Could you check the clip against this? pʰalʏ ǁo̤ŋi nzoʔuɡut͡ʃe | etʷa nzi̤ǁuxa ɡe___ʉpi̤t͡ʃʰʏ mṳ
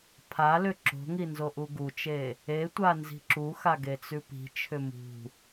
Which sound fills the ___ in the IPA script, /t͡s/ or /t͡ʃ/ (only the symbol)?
t͡s